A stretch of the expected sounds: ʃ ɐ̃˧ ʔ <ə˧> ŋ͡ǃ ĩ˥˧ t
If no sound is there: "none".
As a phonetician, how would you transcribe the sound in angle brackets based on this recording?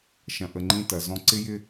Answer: ə˧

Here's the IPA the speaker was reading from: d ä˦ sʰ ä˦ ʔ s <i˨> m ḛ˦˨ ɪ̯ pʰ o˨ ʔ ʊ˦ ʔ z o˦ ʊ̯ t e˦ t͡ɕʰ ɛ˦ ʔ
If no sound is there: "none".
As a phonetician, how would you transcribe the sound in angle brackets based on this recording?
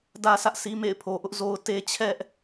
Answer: i˦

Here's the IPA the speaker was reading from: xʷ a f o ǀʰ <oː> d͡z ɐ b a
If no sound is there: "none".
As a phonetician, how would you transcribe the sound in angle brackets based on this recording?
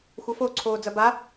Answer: oː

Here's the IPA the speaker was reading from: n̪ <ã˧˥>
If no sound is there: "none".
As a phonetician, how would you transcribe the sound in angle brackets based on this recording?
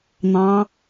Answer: ɑ̃˧˥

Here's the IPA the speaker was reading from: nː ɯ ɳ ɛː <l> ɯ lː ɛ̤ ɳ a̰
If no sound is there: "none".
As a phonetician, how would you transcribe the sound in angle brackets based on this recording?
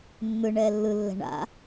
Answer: lː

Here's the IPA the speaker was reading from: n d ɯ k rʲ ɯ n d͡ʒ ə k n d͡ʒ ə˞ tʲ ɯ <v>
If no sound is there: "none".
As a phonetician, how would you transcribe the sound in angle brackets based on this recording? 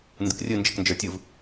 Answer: v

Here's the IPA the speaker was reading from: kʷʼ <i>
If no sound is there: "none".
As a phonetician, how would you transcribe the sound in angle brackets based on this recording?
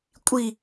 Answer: i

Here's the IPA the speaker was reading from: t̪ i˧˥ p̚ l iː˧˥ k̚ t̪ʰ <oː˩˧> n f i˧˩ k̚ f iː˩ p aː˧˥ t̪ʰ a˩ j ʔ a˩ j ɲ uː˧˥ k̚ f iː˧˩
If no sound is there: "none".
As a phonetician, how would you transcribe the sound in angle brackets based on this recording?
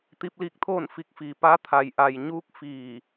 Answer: oː˥˨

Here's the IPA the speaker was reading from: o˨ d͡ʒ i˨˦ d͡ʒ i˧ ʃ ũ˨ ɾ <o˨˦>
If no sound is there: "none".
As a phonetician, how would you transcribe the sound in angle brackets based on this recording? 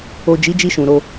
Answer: o˧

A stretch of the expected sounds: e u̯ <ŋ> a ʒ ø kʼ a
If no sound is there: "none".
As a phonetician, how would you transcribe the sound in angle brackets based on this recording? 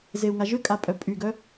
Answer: ŋ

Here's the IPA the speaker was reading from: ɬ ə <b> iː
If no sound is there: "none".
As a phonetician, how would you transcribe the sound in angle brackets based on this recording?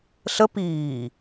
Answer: p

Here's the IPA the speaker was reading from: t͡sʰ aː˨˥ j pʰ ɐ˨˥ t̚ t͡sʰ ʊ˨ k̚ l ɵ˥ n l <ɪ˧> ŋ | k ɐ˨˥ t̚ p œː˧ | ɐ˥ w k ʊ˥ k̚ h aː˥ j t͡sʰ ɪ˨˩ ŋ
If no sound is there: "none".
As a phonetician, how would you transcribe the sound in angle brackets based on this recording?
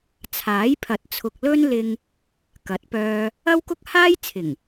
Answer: ɪ˧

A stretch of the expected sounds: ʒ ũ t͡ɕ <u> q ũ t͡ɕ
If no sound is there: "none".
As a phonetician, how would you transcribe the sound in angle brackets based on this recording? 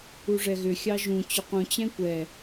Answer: ʏ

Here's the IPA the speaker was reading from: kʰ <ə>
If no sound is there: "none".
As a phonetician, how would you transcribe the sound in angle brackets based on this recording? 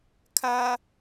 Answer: a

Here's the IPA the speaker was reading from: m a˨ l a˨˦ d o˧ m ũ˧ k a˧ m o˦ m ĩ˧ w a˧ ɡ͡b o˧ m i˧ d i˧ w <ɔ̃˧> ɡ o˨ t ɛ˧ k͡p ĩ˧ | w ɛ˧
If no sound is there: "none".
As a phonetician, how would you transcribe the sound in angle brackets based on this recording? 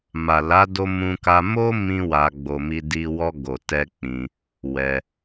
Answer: ɔ˧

